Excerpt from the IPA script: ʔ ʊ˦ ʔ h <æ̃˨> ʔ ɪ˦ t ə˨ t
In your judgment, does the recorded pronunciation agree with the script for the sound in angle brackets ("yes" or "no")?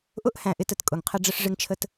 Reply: yes